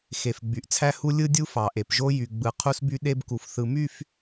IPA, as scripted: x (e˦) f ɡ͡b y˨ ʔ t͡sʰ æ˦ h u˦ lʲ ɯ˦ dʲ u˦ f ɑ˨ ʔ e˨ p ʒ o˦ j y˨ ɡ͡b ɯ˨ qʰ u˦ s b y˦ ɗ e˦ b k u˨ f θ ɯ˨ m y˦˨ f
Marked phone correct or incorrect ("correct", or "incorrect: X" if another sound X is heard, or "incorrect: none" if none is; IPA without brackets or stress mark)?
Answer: incorrect: e˨